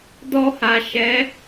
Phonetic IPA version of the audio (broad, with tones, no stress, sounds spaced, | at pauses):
d ɔ˧ h a˨ ʃ ɛ˨˦